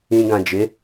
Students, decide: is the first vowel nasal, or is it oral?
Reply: nasal